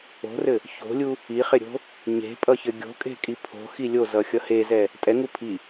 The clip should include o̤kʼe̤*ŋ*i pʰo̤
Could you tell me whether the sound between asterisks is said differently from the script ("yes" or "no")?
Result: yes